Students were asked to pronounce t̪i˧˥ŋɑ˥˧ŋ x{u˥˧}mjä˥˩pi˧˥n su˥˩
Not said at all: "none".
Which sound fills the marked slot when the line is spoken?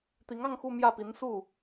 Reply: u˥˧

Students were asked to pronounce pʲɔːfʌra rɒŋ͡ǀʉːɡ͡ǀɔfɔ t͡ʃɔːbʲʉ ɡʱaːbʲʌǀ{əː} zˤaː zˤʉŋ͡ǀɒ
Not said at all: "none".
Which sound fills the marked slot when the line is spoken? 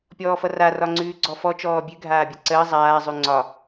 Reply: əː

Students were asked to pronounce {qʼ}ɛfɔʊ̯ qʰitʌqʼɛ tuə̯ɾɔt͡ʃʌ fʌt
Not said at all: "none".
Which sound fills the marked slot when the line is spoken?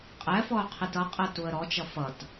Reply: qʼ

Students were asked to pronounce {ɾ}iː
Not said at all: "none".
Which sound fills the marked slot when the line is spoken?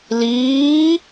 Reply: l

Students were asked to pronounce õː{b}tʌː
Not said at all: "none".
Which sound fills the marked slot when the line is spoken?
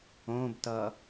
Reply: b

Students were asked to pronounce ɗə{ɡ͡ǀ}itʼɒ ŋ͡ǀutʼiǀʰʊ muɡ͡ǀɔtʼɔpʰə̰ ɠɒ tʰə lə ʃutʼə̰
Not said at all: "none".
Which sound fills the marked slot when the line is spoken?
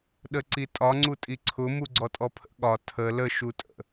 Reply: ǀ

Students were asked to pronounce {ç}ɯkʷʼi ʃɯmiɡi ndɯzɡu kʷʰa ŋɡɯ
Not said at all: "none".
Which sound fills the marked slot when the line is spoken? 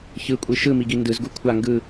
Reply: ç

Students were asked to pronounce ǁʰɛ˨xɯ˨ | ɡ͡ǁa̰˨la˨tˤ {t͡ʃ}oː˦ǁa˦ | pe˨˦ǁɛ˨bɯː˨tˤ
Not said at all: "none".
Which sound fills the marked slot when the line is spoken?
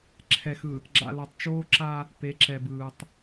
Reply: t͡ʃ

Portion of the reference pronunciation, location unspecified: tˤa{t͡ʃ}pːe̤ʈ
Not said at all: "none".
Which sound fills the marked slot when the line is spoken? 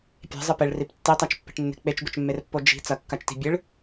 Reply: t͡ʃ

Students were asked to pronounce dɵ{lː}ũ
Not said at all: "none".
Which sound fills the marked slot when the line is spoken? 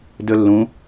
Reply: lː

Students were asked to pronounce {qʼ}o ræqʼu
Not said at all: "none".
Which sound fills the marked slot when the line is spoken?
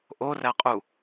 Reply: ʔ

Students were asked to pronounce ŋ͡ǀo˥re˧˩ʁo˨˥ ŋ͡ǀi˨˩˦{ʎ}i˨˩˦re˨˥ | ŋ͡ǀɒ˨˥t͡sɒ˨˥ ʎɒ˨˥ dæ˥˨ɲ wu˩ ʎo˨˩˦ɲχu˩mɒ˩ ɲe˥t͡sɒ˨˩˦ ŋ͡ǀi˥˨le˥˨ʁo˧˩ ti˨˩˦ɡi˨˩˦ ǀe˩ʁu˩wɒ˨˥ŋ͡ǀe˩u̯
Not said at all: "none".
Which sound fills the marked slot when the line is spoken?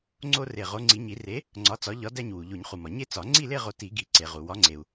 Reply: ɲ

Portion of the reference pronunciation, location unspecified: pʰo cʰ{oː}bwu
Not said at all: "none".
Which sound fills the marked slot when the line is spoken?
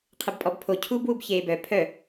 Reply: uː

